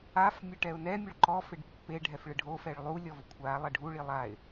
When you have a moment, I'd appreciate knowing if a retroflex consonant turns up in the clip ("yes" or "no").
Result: yes